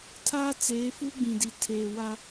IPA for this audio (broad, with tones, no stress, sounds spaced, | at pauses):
tʰ aː˦ t͡s eː˨˦ f uː˦ ɡ͡b ĩ˨ d i˨ tʰ eː˨ w a˦